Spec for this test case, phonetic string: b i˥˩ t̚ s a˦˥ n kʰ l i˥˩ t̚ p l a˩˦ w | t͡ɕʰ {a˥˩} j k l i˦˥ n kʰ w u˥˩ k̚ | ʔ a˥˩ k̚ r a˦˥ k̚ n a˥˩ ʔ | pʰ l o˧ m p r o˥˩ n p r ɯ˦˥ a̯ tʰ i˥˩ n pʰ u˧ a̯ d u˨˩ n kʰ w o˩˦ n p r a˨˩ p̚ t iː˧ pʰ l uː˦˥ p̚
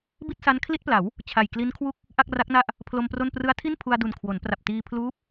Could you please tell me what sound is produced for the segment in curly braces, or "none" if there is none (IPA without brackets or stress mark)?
a˨˩